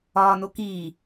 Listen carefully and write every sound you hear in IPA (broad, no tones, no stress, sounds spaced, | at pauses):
ɒː n o k iː